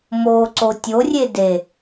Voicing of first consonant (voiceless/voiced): voiced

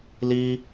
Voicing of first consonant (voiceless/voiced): voiced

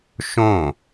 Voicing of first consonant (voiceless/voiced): voiceless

